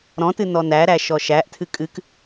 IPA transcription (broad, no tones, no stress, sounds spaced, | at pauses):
ɾ ɔ̃ t ɨ n ɔ n æ ɾ æ ʃ ɔ ʃ æ ʔ tʰ ɨ kʼ ɨ k